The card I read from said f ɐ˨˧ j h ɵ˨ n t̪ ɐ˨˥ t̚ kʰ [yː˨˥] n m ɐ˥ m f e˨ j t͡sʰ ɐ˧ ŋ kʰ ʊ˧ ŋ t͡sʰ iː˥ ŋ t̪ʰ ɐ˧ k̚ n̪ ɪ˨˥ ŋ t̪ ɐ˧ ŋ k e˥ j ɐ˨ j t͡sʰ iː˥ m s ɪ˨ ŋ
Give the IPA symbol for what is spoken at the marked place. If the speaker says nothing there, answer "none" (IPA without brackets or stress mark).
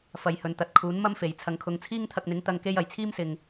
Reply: uː˨˥